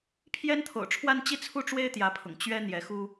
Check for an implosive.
absent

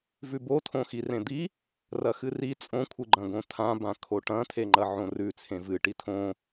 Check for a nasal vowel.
present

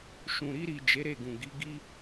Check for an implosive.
absent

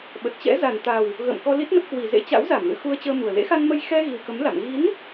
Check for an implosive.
present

